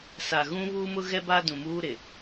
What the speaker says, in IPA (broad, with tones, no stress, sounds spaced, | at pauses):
s a˨ ɣ ũ˦ β uː˦ m ʊ˦ ɣ ɛ˦ b a˦ d ũ˨ m uː˦ ɾ ɪ˨